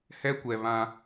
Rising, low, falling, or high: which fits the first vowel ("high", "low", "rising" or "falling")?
high